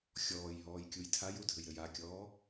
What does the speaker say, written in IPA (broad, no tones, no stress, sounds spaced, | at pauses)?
xʲ ɔː j ɦ ɔː j kʲ u j tʰ a j u dʱ ɘ j ɾ ɘ j a kʲ ɔː